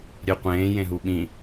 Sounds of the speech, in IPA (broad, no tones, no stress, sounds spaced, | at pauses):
ɾʲ e qʷ ẽː j ẽ ɦ u ɓ ĩ